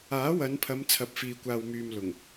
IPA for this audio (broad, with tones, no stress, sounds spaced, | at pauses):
aː˨˥ w ɐ˨˧ n pʰ ɐ˨˧ m t͡sʰ ɐ˨ p̚ f iː˨ kʷ aː˨ w m yː˨ m l ʊ˨˩ ŋ